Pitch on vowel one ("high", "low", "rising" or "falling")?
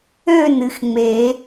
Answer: falling